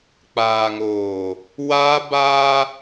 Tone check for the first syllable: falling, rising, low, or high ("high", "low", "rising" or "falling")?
low